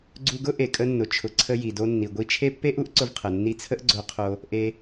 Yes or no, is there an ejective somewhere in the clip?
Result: yes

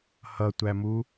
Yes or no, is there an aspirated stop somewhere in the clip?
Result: no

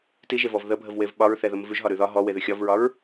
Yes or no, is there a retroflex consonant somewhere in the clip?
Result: no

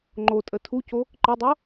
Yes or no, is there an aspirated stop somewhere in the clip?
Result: yes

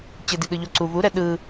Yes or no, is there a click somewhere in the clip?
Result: yes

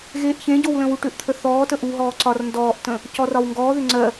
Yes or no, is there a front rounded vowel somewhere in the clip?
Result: yes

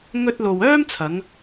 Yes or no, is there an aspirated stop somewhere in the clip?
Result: yes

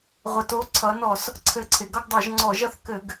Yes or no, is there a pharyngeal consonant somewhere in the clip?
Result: no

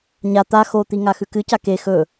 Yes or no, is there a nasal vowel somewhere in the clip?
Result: no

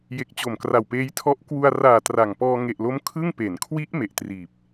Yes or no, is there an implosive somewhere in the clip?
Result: no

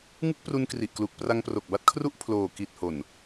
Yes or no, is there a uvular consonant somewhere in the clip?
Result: no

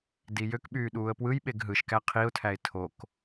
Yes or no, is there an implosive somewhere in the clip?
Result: yes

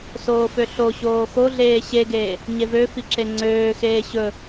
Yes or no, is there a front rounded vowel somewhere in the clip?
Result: yes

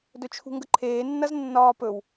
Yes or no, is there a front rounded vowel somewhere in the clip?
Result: no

